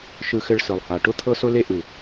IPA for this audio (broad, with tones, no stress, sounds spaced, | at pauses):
ʃ ɯ˧ x ɘ˧ ɭ s ɯ˩ lˠ h a˩ ʈ ʊ˧ t̪ʰ ɤ˧ s ʊ˧ l e˧ ʔ ɯ˩